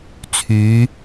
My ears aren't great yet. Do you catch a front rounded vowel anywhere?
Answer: yes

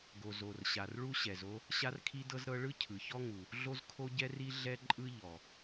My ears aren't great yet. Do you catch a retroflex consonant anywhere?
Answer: yes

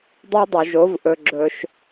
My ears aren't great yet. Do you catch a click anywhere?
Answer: yes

